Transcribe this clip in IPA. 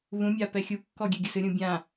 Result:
β ũ mʲ a p ɛ xʲ u kː ɔ ɡʲ ɛ ɡʲ ɐ s ɨ ɾʲ ũ bʲ ã

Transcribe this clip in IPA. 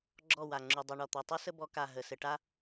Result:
ɡ͡ǁ ɔ˦˨ w a˨ ŋ͡ǁ u˨ dˤ u˨ ɳ ɔ˨ t̪ o˨ tˤ u˦ s ə˦ b ɔ˨˦ k a˨ ɦ ə˨ s ɘ˨ ʈ a˦

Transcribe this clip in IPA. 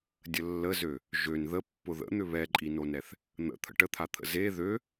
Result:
dʲ ə lː ə z ø | ʒ ø n ð ə pː ʊ ð ə̰ n̪ ʏ β ɛ ǃʼ i n o n ɛ θ | n̪ ə̰ t̪ʰ ə̰ ʈ ə t̪ʰ a t̪ʰ ə̰ z e ð ø

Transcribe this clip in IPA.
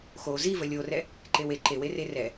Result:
x o z i v ə lʲ o r ɛ | ǃ e w e ǃ e w e r e r ɛ

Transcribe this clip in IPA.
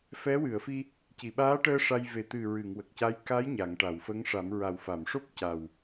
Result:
f ɛ˧˥ w ɨ˨˩˨ ə̯ f i˧ | c i˨˩˨ ɓ aː˧˥ ʈ əː˧ ʂ a˧ j v e˨˩ t̪ ɨ˨˩ ɹ ɨ˨˩˨ ŋ w ə˨˩ k̚ c a˧˥ j k a˧˥ j ɲ a˨˩˨ ŋ ʈ a˨˩˨ w f ə˧˥ ŋ ʂ a˨˩˦ m ɹ a˨˩ w f a˨˩˨ m ʂ o˦˥ p̚ c a˨˩ w

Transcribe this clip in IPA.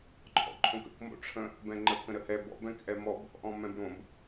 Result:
ǃʰ ɔ̰ ǃʰ õ k ə̰ k m o̰ ʈ͡ʂʰ ə̃ | b ɛ̃ ŋ͡ǃ ə k ə̃ ɾ ə h ɛ b ɔ̰ b ɛ̃ k ʔ ɛ m ɔ b | ʔ ɔ̃ m ɛ̃ b ɾ õ b

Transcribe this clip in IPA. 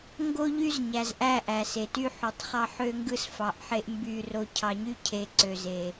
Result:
ŋ ɡ o˦ ʎ y˦ z ɲ æ˨ z ʔ æ˦˨ ʔ æ˨ s e˨ t y˦ ħ o˨ tˤ χ ɑ˦ ħ ø˦ ŋ ɡ ɯ˦ s f ɑ˨˦ ʔ ħ e˦ ʔ m b y˦˨ r o˦ cʰ ɑ˨ ɲ y˦ cʰ e˨ ǀ ø˨ z e˨

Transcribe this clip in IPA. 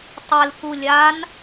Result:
tˤ e l k u lʲ a n

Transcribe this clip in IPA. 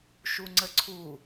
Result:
ʃ u ŋ͡ǀ ə ǀʰ u

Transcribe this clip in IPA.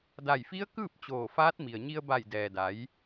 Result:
d a˧˩ j f i˧˥ ə̯ k ɯː˥˨ p̚ t͡ɕ oː˧˩ f aː˧˥ t̚ m i˩ ə̯ ɲ i˧ ə̯ b a˧˩ j d ɛː˩ d a˩˧ j

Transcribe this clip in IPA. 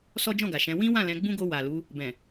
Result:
s ɔ˦ d͡ʒ ɔ̃˦˨ ɡ a˨ ʃ ɛ̃˨˦ w ĩ˦ w ã˦˨ l ɛ̃˧ ɡ͡b ũ˦ ɡ o˧ w a˨ l u˨˦ | b ɛ̃˨

